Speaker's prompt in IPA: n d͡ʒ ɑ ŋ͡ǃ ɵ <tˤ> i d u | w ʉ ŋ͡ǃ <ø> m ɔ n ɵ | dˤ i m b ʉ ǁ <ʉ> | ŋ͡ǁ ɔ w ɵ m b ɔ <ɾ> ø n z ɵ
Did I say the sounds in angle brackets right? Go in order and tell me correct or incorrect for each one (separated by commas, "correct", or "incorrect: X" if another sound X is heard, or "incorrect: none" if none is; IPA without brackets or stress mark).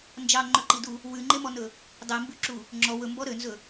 incorrect: ǃ, incorrect: e, incorrect: u, correct